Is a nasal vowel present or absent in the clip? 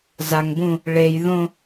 present